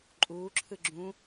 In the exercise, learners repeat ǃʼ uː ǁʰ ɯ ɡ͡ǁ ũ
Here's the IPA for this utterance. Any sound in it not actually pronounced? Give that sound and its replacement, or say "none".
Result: none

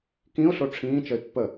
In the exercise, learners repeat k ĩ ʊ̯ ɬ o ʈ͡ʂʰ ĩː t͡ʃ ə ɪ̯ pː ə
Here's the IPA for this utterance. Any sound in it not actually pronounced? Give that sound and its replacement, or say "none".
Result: none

